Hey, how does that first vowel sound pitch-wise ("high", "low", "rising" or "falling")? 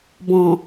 low